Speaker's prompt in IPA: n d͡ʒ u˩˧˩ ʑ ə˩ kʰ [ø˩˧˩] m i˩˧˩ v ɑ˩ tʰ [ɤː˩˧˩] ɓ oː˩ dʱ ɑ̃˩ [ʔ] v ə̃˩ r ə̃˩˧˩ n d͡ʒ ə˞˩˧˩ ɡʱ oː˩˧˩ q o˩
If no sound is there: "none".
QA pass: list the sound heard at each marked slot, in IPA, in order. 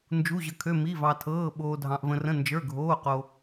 ø˩˧˩, ɤː˩˧˩, ʔ

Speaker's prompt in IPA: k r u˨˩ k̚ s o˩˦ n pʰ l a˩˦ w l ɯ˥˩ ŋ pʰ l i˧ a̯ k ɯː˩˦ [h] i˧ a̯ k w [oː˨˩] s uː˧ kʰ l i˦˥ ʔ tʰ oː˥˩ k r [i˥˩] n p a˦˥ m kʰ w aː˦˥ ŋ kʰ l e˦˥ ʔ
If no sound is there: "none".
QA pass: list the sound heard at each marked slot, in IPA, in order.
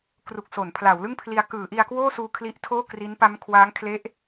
ʔ, oː˥˩, i˦˥

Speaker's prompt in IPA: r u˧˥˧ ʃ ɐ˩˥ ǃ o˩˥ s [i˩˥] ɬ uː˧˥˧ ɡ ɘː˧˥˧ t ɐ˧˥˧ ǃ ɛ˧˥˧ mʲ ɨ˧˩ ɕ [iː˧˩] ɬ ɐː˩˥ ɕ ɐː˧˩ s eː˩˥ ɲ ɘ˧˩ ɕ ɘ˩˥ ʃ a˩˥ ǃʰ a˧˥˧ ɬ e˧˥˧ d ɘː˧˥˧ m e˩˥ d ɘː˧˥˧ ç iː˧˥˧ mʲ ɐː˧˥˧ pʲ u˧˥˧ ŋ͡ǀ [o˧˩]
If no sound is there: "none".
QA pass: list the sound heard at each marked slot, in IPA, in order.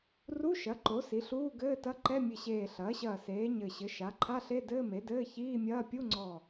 i˩˥, eː˧˩, ɔ˧˩

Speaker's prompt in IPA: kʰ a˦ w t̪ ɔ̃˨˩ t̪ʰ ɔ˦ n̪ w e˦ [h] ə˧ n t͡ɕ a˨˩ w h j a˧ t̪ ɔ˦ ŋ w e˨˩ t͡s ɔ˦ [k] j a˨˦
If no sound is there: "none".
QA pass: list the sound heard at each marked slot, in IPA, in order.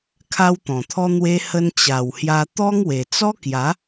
h, k

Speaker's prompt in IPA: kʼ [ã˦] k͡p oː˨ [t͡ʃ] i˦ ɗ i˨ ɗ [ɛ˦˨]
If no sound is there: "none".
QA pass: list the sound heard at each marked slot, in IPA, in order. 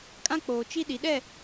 ã˦, t͡ʃ, ɛ˦˨

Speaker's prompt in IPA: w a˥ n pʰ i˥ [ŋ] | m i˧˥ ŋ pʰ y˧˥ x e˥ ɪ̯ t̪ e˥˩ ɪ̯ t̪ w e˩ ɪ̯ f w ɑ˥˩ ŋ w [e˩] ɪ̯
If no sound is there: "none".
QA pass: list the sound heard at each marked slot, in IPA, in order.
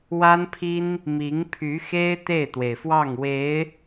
n, e˧˥

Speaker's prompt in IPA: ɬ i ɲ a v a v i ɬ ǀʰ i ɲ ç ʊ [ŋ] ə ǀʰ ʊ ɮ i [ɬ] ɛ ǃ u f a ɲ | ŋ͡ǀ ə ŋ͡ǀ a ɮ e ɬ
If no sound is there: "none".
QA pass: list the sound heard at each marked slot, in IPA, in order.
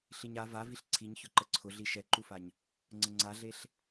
ǃ, ʃ

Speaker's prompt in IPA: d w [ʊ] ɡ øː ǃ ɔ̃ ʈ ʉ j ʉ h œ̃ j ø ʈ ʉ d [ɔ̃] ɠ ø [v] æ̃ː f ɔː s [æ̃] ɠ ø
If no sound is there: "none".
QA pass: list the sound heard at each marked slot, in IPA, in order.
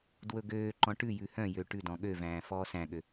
ɵ, ɔ̃, v, æ̃

